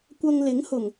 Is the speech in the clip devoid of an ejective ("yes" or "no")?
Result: yes